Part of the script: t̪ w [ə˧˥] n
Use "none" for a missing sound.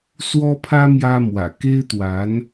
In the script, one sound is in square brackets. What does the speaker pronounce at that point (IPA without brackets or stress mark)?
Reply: a˧˥